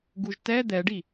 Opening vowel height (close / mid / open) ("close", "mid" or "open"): close